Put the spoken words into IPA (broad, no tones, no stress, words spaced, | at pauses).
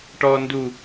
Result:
ʈɔ ndu